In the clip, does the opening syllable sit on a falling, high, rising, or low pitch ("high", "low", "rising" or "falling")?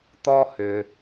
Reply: low